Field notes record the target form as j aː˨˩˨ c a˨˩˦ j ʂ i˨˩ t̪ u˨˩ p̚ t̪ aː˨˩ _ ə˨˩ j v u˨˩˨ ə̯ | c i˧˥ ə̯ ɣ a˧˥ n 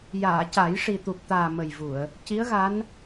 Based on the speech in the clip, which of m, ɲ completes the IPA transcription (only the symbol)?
m